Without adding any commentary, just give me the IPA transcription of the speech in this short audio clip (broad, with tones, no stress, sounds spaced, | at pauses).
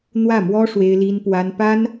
n̪ w ä˥˩ m w ɔ˥ ʂ w e˥ ɪ̯ l i˥ n p w a˥ n p a˥ n